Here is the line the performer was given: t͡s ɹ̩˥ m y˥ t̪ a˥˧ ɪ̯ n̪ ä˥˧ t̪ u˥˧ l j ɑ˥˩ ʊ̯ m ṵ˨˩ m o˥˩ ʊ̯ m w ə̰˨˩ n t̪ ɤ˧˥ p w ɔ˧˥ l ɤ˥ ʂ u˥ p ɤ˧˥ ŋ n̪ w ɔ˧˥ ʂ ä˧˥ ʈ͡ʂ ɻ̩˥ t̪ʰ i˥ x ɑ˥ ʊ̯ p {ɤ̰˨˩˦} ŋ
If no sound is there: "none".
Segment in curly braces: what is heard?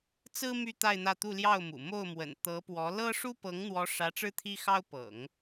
ɤ̰˨˩˦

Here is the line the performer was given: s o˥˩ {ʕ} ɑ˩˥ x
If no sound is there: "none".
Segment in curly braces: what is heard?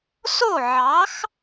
ʕ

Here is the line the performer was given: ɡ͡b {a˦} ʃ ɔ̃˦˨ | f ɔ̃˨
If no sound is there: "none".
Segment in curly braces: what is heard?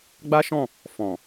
a˦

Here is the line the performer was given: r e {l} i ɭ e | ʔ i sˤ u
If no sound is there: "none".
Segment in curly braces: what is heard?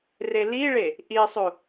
l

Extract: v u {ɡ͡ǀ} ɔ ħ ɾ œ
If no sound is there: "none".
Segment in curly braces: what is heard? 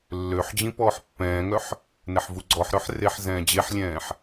ɡ͡ǀ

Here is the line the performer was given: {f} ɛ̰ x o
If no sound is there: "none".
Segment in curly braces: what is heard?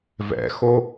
v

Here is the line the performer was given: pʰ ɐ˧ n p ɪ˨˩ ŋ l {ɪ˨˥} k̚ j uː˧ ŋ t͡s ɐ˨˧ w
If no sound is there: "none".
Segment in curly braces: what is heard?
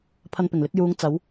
ɪ˨˥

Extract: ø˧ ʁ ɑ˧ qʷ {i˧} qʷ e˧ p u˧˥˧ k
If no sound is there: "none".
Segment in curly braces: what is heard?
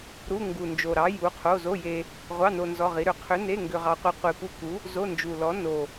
i˧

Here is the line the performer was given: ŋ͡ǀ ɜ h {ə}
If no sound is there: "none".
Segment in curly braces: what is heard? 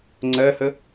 ə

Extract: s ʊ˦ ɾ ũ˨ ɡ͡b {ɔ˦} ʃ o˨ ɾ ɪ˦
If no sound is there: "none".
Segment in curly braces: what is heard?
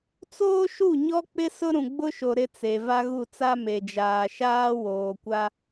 ʊ˦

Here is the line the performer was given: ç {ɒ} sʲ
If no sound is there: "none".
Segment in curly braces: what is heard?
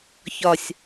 ɒ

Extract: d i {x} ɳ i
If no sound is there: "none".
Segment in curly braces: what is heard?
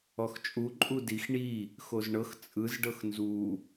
x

